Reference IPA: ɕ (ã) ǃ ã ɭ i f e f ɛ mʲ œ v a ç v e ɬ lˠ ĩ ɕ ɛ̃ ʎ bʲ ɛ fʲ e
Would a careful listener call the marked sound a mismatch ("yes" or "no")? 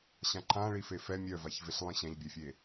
no